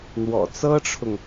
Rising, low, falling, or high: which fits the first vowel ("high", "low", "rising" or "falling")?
low